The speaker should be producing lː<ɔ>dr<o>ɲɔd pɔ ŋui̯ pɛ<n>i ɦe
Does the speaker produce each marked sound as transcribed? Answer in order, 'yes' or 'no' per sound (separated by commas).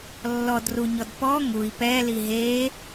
yes, no, no